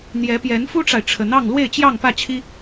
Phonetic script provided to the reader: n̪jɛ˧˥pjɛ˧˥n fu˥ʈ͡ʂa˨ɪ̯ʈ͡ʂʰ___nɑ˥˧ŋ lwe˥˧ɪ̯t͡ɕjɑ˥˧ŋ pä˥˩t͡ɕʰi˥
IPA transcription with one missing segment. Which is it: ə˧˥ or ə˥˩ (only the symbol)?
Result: ə˧˥